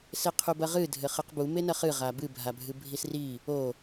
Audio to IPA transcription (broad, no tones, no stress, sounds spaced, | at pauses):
s e qʰ u b ɐ ʁ ɨ dʱ ɘ χ ɨ q b u m e n ɐ χ ɨ ʁ a b ɨ bʱ a bʱ ɨ bʱ i s r i | o